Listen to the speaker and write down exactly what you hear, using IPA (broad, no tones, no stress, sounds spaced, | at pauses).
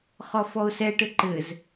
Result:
χ ɔ f ɔ ʊ̯ s ɛ ʈ ɘ ǃ ɘ z